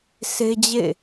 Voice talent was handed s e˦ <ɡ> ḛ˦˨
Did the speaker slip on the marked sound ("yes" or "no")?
yes